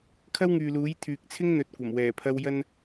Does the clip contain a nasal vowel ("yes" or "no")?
no